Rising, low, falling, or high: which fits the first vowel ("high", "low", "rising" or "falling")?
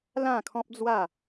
falling